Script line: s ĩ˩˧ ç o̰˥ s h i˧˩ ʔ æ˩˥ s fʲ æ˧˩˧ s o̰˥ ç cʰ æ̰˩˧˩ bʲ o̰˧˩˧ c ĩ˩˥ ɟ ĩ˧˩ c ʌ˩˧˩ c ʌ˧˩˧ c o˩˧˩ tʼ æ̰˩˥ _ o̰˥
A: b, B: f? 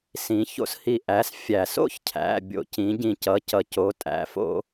B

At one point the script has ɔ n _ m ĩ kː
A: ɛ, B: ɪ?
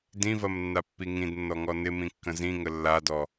B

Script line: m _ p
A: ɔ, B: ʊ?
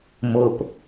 B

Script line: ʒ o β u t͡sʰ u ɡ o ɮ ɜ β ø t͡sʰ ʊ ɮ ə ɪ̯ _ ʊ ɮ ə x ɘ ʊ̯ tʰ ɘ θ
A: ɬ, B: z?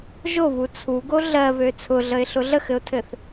A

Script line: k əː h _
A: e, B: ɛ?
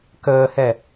B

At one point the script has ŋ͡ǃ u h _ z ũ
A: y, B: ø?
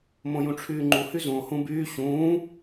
A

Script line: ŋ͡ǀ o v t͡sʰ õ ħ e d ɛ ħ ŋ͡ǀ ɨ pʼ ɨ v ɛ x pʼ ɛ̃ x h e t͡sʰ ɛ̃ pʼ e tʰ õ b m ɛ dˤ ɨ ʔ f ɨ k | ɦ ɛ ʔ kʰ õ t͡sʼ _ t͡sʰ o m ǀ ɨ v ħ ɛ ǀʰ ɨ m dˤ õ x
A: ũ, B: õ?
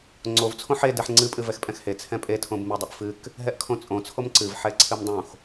B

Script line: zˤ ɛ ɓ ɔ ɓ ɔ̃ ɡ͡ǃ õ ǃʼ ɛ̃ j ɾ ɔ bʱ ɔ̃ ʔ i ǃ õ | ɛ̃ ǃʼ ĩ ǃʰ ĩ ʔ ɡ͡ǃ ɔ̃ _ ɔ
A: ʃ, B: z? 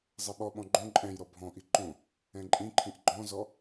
B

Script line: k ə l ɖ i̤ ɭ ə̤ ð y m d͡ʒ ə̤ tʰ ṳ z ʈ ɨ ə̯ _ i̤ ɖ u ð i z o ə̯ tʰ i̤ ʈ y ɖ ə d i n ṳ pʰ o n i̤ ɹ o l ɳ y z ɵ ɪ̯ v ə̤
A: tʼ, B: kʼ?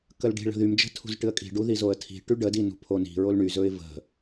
B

